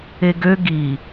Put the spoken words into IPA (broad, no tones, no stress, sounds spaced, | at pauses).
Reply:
e ɡ ø ɡ i